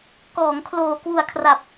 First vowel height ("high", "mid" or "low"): mid